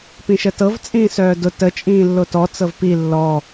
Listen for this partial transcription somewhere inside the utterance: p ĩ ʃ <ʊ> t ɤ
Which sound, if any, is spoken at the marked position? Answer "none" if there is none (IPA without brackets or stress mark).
ə